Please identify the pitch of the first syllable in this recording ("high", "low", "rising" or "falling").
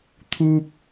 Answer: high